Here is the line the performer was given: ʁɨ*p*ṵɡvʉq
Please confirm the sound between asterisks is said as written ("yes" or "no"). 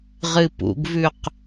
yes